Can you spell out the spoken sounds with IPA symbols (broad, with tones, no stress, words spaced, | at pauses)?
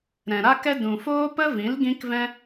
ɾɛ̃˨ɾa˦kɛ˦ dũ˨foː˦pə˦vĩ˨˦l ɡĩ˦kvɛ̃˦